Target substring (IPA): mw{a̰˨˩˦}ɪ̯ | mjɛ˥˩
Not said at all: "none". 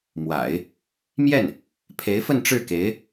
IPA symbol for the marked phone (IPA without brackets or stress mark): a̰˨˩˦